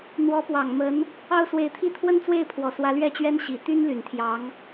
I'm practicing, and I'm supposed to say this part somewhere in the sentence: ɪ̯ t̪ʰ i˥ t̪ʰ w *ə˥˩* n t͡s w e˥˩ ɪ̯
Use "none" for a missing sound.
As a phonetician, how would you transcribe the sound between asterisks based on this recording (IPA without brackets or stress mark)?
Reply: ə˥